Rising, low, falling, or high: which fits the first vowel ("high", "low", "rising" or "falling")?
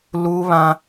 high